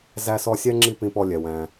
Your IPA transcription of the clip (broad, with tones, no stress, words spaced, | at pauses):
zæ˦sɔ˦sʲɛ˥ŋ͡ǁi˦ pĩ˦pɔ˦lʲɛ˨wæ̃˨